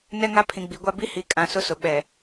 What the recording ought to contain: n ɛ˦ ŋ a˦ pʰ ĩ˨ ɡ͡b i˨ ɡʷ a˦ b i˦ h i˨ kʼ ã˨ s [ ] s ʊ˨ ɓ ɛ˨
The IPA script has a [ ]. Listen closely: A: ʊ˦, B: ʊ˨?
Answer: A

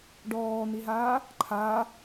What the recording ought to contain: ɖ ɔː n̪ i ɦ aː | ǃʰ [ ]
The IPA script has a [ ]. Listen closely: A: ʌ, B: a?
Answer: B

